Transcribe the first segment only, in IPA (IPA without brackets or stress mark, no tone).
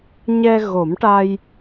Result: ɲ